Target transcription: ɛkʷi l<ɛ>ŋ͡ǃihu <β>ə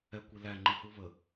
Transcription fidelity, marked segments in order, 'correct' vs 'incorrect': incorrect: æ, correct

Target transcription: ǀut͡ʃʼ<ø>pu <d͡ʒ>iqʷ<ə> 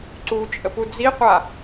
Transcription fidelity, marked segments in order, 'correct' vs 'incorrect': incorrect: ə, incorrect: d͡z, incorrect: a

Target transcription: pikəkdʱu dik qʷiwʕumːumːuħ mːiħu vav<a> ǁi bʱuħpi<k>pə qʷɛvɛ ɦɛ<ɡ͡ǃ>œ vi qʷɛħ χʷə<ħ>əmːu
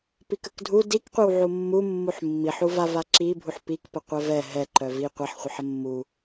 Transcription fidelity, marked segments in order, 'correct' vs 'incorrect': correct, correct, incorrect: ǃ, correct

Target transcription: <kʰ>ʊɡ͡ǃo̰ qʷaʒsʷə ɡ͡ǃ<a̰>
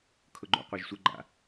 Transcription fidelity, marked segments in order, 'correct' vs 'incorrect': correct, correct

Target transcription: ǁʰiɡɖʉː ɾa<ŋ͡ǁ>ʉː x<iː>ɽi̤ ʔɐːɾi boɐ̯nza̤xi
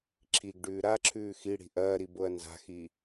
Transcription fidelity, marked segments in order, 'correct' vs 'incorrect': incorrect: ǁʰ, incorrect: i

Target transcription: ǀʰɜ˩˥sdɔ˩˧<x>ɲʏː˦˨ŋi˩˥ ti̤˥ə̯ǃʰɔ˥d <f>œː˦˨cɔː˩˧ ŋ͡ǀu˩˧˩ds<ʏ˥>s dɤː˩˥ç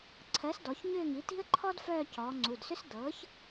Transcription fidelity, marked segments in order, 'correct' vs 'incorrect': incorrect: ç, correct, correct

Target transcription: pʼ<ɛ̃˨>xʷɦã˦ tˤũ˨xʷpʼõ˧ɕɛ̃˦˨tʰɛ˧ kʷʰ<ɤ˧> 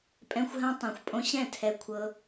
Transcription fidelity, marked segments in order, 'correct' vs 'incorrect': incorrect: ɛ̃˦, correct

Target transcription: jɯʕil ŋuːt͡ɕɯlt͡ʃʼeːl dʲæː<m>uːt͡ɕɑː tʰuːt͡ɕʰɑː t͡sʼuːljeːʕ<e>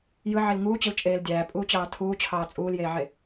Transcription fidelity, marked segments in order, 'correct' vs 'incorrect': incorrect: pʼ, correct

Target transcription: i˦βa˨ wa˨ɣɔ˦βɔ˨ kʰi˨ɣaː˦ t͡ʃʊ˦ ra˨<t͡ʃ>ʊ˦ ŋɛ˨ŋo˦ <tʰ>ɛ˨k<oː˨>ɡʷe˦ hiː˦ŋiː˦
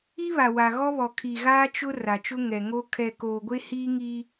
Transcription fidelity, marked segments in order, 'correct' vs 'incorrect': correct, incorrect: kʰ, correct

